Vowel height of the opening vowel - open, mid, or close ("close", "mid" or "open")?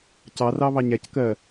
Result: open